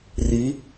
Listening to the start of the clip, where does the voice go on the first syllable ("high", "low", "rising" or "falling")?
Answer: rising